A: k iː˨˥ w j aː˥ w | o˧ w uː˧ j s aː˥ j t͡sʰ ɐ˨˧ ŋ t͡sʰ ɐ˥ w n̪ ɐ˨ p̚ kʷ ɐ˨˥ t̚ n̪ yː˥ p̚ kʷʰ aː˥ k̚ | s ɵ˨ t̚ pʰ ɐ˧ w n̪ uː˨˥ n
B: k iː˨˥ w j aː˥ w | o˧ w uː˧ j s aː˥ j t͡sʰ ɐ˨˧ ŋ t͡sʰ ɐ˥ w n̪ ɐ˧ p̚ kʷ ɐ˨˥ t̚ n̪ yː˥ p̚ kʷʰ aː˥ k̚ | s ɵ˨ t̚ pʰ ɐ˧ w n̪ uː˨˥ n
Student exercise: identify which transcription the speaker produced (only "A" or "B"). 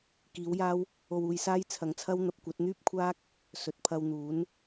B